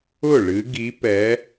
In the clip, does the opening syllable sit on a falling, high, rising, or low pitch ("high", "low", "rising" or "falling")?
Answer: falling